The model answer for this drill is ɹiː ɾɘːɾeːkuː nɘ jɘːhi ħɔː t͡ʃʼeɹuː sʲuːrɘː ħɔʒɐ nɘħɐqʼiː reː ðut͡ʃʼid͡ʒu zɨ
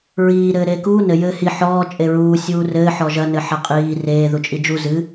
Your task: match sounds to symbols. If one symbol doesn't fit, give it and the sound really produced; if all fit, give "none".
none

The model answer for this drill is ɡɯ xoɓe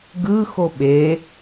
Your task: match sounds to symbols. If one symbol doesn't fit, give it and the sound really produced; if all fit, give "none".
none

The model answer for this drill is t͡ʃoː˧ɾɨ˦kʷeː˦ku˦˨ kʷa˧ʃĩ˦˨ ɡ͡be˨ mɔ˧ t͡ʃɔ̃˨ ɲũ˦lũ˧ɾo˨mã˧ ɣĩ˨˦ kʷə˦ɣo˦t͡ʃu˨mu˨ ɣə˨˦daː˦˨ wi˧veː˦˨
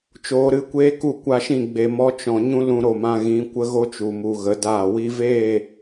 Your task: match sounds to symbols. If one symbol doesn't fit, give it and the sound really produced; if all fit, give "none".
none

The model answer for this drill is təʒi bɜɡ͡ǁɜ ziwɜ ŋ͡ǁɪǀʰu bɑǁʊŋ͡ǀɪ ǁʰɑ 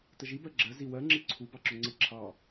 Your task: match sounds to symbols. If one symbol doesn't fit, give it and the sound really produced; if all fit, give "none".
none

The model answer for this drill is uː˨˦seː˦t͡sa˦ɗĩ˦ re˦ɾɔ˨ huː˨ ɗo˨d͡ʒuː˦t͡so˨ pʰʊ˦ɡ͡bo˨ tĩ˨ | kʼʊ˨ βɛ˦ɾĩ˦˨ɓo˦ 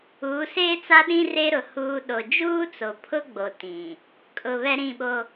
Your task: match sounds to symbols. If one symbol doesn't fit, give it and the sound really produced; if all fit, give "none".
ɔ˨ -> ʊ˨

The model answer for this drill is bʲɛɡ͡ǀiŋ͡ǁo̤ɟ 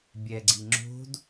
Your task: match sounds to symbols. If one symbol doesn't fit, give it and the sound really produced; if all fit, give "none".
ɟ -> d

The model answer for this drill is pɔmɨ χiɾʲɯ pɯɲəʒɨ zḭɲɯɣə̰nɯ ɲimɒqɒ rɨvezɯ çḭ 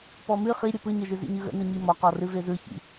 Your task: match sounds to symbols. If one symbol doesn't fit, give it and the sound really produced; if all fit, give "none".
none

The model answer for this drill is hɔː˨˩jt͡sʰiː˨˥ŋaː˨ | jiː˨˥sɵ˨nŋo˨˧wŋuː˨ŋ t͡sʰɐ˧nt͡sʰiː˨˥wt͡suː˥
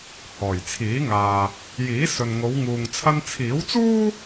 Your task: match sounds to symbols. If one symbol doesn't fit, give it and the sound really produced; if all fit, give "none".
none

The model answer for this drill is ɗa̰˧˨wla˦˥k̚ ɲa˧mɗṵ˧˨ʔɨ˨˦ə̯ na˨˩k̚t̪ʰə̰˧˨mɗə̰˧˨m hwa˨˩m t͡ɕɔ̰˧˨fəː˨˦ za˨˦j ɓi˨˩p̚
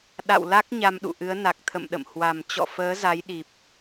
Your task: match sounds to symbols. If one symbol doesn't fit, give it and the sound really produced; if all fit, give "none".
ɓ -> ɗ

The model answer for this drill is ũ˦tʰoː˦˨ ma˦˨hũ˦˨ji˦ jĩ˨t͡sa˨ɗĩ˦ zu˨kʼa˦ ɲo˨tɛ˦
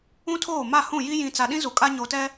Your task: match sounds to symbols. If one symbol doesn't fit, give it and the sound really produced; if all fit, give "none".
none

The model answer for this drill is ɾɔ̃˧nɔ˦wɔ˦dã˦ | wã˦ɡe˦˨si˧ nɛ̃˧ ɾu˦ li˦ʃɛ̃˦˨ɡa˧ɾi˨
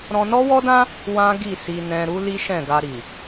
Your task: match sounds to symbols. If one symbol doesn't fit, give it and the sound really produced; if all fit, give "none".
e˦˨ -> i˦˨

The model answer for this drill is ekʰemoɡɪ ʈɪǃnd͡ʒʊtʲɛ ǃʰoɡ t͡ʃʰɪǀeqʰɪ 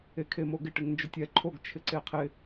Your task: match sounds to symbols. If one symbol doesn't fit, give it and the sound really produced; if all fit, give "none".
ǃ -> ŋ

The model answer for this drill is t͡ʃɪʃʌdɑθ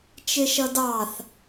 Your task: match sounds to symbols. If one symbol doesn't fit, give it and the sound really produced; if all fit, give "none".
none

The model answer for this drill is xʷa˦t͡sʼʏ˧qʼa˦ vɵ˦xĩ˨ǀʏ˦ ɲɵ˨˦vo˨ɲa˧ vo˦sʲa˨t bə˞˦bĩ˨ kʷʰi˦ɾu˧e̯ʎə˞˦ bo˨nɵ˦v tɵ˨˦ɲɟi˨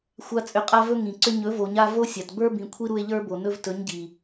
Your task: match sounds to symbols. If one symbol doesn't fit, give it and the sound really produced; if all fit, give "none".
x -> ŋ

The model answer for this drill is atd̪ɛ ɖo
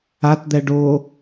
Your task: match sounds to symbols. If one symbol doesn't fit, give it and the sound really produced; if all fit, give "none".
none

